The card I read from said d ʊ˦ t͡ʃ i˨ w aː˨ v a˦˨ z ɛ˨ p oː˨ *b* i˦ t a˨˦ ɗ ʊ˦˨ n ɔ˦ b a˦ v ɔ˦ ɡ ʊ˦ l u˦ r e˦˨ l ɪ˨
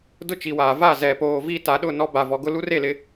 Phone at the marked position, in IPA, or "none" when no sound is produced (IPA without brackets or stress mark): v